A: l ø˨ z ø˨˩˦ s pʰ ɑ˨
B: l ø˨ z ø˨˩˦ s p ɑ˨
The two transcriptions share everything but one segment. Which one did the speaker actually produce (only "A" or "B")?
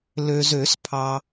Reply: A